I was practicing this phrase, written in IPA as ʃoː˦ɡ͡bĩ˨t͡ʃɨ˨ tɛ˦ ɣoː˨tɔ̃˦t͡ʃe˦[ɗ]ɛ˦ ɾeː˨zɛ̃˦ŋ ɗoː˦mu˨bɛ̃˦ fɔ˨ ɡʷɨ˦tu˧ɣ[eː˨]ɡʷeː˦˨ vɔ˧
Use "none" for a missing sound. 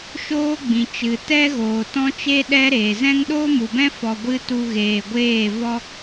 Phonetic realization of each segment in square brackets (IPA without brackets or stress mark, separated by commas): ɗ, eː˨